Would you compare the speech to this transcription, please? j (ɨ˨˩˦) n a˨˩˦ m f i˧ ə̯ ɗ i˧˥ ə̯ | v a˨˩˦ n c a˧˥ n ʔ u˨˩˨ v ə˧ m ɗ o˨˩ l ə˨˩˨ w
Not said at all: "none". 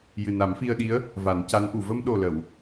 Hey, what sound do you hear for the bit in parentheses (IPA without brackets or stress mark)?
ɨ˨˩